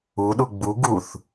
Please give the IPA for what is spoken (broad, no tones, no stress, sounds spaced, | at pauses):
u ɗ u ɡ͡b u ɡ u θ